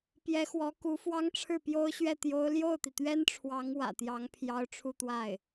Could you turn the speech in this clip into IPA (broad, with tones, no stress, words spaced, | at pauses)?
pjɛ˧˥xwɔ˧˥ ku˧˥fwɑ˥ŋ ʈ͡ʂʰɻ̩˥˩pjo˥ʊ̯ɕɥɛ˥˩ t̪jo˥ʊ̯ ljo˥˩ʊ̯t̪i˩t̪ɥɛ˥nʈ͡ʂʰwɑ˧˥ŋ wä̰˨˩t̪jɑ˧˥ŋ pʰjɑ˥ʊ̯ʈ͡ʂʰu˥˧t̪wa˥˩ɪ̯